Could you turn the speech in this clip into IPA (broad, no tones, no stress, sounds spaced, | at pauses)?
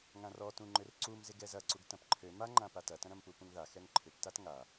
ŋ ã r ɔ t ũ ŋ͡ǃ ʏ r ǀ u m z ɪ ɡ ɛ z ɐ ǀ u ɡ t ɐ̃ p ǃʰ ø m a ŋ͡ǃ ã p a t ɐ t ɐ̃ ɾ ɐ̃ m p u p ũ ŋ ð a x ɛ ŋ ǃʰ ʏ p t a t ŋ a